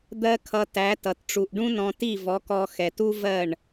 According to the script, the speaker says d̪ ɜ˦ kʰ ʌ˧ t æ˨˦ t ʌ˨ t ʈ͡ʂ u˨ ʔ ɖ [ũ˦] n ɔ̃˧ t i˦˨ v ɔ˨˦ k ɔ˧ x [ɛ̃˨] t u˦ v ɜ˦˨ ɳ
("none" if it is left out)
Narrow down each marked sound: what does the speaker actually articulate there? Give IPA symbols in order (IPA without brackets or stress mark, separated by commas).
ũ˦, ɛ˨